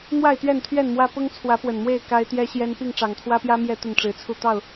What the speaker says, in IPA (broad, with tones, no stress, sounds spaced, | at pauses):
n̪ w a˥˨ ɪ̯ t̪ ɥ ɛ˥˨ n t̪ʰ ɥ ɛ˥˨ n m w ä˦ p ʊ˦ ŋ t͡sʰ w ä˨˦ p w ə˨˩ n m w e˥˨ ɪ̯ k a˦ ɪ̯ t̪ j ɛ˦ ɕ j ɛ˦ n p i˥˨ ŋ ʈ͡ʂ ɑ˨˩ ŋ t̪ʰ w ä˦ p j ä˦ m j ɛ˥˨ t̪ ə˥˨ n ʈ͡ʂ ɻ̩˨˦ t͡sʰ u˥˨ t̪ ɑ˥˨ ʊ̯